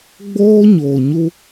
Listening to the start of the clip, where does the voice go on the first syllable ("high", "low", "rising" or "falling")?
high